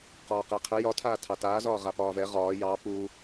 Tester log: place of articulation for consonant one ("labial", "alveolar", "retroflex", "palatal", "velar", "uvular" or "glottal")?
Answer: uvular